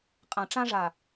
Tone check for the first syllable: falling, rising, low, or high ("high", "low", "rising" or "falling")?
low